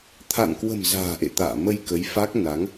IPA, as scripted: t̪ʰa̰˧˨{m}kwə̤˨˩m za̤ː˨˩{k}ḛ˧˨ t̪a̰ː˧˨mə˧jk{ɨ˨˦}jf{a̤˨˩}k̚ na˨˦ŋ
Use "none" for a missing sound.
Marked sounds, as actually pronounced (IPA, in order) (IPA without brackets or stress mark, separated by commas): n, ʔ, ə˨˦, a˦˥